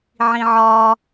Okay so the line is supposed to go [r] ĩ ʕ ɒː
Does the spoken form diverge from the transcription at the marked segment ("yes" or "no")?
yes